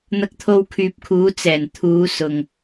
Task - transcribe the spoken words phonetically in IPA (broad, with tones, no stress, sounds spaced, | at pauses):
n̪ ɐ˧ k̚ t̪ʰ o˧ w kʰ yː˨ p̚ kʰ uː˨˧ t͡s ɛː˨˩ n t̪ʰ uː˨˧ s ʊ˨ ŋ